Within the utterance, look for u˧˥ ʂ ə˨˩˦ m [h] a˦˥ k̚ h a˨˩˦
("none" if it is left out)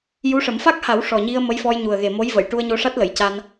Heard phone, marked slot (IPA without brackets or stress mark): f